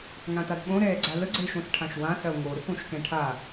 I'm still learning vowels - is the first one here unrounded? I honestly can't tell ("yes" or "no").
yes